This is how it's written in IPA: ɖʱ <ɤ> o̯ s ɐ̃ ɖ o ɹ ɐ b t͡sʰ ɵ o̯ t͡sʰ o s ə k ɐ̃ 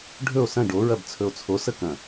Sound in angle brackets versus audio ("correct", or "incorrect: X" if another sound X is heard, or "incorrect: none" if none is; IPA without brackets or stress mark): incorrect: ɵ